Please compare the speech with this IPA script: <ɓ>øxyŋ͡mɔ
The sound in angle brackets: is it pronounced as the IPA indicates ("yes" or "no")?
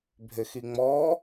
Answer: no